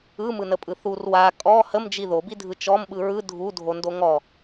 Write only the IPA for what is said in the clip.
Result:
ɯ m ɯ n ə pʼ ɯ θ u r w a kʼ ɔ h ə m d͡ʒ i ð o b i dʱ ɯ t͡ʃ ɔ m ɓ ɯ ɹ ɯ dʱ u dʱ o n d o ŋ ɔ

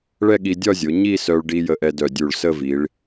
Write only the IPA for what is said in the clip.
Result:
ɭ ɛ˥˧ ɠ i˧ dʲ ɒ˥˧ zʲ o˩˧ ɲ i˥˧ s œ˧ ɭ ɖ i˧ j ə˧ ʔ ɛ˧ d œ˧˩ dʲ u˧˩ ɭ s ə˥˧ v i˩˧ ɭ

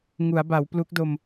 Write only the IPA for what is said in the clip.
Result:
ŋ u˩˦ a̯ b a˩˦ w p l u˦˥ k̚ d o˧ m

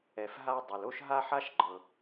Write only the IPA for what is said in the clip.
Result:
ɛ˨ f ɦ a˦ dˤ u˨ l o˥ ʃ ɦ a˥ ħ a˥ ʃ ɡ͡ǃ ɤ˨

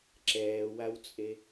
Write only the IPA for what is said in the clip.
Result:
ǁ ɛː w a w t͡sʼ e

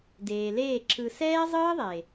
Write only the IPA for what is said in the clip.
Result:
d eː˨ l eː˦˨ ǁ ɯ˨ s ɛː˦ zˤ ɯː˦ ðˤ e˨

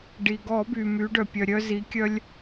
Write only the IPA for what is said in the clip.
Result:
ɖ i˩ ɡ ɔ˧˩˧ b y˩ m y˩˧ ɖ œ˩ pʲ œ˩ ɾʲ œ˧ z i˩˧ kʲ œ˧ lʲ

